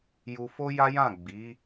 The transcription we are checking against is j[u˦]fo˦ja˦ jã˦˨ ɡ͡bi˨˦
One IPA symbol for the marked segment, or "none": u˧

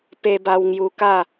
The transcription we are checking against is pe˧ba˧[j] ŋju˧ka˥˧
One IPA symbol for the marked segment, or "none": w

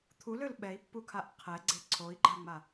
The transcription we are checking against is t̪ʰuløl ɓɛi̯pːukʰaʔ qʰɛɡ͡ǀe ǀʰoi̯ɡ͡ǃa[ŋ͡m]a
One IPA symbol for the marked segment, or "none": ŋ͡m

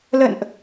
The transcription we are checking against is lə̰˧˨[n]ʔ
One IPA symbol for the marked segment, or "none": n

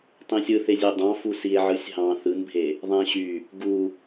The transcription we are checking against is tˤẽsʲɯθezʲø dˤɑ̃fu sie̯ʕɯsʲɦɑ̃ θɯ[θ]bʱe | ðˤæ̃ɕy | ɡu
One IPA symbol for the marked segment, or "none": n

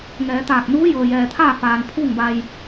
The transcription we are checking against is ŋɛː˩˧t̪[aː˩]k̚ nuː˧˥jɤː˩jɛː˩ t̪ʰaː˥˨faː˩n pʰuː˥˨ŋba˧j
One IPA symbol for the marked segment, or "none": aː˧˩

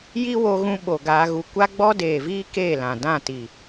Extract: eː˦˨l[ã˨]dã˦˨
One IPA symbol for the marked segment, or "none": ã˨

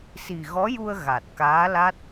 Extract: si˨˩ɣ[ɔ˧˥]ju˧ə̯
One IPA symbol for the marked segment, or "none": ɔ˧˥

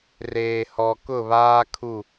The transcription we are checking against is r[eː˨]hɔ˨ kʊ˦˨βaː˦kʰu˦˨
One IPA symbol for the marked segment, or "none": eː˨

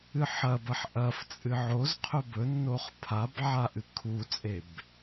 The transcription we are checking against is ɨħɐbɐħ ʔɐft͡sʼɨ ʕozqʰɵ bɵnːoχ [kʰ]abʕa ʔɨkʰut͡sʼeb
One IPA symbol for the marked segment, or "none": pʰ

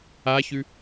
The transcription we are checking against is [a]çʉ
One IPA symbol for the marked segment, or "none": a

